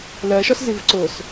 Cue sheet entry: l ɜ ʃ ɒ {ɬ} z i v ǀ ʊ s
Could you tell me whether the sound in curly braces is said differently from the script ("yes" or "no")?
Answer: yes